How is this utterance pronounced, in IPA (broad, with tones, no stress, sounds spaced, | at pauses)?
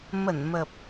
m ə˧˩ n m ə˨˩ p̚